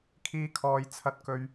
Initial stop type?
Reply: aspirated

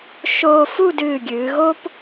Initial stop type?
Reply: plain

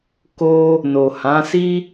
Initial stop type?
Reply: plain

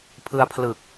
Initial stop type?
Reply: aspirated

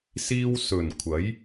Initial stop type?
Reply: aspirated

